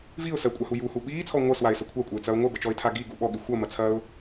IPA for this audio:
v i ʊ̯ s ɜ kʷʼ a h u j u h u ɓ iː t͡sʰ ɔ ŋʷ ɜ s w a ɪ̯ s ɐ kʷʰ a kʷʼ ɐ ɪ̯ t͡s ɐ ʊ̯ ŋʷ ɜ b ə t͡ʃ ɔ ɪ̯ tʰ a ɡ i ɡ u ɓ ɔ ɠ i xʷ ɐ m ɐ t͡sʰ ɐː ʊ̯

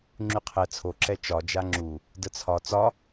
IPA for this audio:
ŋ͡ǁ y qʰ ɛ t͡sʰ o ǁ ɛ t͡ʃ ɒ d͡ʒ a ŋ͡ǁ u | d ə t͡sʰ ɒ t͡s ɒ

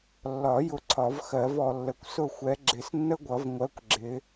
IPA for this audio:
lː ɒ˨˩˦ j ʊ˨ ǀʰ ɒ˨˩˦ v x ɜ˨˩˦ v ɔ˨ lː ə˨ kʷ s ʊ˥˩ xʷ ɛ˨˦ ɡ͡ǁ ɪ˨˩˦ s nː ə˥ ɡʷ ʌ˨˩˦ v ŋʷ ɜ˨˦ kʷ ɡ͡ǁ ɪ˨˦

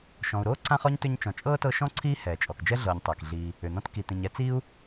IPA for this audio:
ʃ ɔ̃˨ u̯ ɾ oː˥ ǀ ã˦ χ ɔ˥ ɲ t ʏ˦ ɲ t͡ʃ ɔ̃˨ t͡ʃʼ ɤː˥ t ɤ˦ ʃ ɔ̃˥ ǀʰ iː˦ h ɛː˩ t͡ʃʼ ɔ˩ k d͡ʒ ɛ˥ ɮ ɤː˨ ɲ tˤ ɛː˩ k ɮ iː˨ | ʏ˩ n̪ ɔ̃˦ t k i˨ t̪ ĩ˨ ɲ ɛ˦ t͡s iː˥ u̯

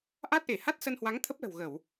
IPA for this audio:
ʔ a˦˥ t̚ ʔ e˧˩ h a˦˥ t̚ s ə˧ n h w a˨˦ ŋ t̪ʰ ə˦˥ p̚ l ə̤˨˩ w ɣ ə˧˩˨ w

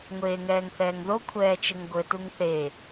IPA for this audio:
ŋʷ eː ŋ ɛː ŋ θ ɛː ŋ ð o kʷʰ ɛː t͡ʃ ɘ ŋ ɡʷ ɘ t u ŋ θ e

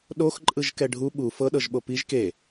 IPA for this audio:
ɗ o x ǃʼ ɯ ʒ k ɛ ɖʱ u ɓ u f ɤ ɗ ɤ ʒ ɓ o p i ʒ k e

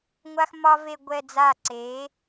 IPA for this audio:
ŋʷ a˦ x m ɒ˦ v e˦˨ ɡʷ ɛ˦˨ d͡z a˦˨ ǀ e˩˥

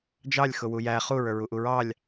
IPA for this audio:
d͡ʒ ɑ lʲ x ʊ w u j æ χ u ɹ ə˞ ɹ u ʔ u ɹ ɑ lʲ

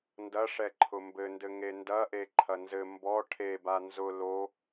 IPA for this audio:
n d ɐ ʂ ɛ ǃʰ ʊ m b ɘ n d ɘ ŋ e n d ɐ ʔ e ǃʰ ɐ n z ɘ m b ɔ ʈʰ e b a n z ʊ l o

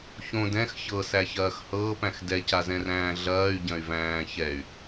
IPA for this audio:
ç õ d ɛ̃ x ç ɤ s æ ç ɐː x h ɤː p æ̃ x d ɛ c a z ɛ̃ r æ̃ː ɮ ɐː y̯ ɟ ɐ̃ y̯ v æ̃ː ç ɛ y̯

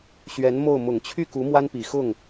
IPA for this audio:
ɕ ɥ ɛ˧˥ n m o˥˩ ʊ̯ m ʊ˨˩ ŋ t͡ɕʰ y˥˩ k u˧˥ m w a˥ n p i˨˩ x ʊ˥˩ ŋ

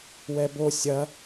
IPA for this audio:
w ɛ b o sʲ ɐ

